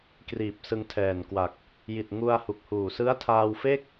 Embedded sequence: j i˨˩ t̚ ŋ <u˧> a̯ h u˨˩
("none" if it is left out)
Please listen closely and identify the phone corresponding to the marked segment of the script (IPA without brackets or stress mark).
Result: u˧